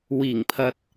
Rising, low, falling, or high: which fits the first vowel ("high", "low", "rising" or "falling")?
low